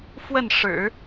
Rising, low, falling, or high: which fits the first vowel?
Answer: falling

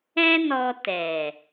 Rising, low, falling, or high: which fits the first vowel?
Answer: high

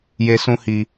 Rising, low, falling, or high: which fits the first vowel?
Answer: high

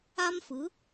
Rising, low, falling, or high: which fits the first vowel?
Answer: high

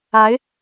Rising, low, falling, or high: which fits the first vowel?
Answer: rising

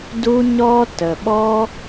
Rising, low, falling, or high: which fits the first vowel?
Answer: high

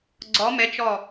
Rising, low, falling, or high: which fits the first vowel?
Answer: rising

